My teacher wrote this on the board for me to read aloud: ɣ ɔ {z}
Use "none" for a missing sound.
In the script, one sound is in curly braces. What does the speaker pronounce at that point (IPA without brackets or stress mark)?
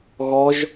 ʒ